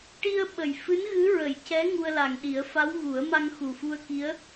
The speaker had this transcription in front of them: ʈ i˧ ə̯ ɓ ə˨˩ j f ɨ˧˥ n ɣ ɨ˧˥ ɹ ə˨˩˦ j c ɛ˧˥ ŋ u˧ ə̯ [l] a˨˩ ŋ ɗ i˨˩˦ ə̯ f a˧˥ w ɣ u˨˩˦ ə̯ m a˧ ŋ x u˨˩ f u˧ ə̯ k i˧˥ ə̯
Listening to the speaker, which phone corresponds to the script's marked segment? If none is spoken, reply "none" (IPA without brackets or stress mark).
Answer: l